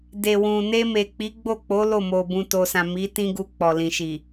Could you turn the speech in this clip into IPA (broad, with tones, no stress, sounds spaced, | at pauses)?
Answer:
d e˨ w ũ˨ n e˧ m e˨ k͡p i˨˦ ɡ͡b o˦˨ k͡p o˨˦ l o˦˨ m o˨ b ũ˨ t o˨ s ã˨ m i˨˦ t ĩ˦ ɡ u˧ k͡p ɔ˨ l ĩ˨ ʃ i˨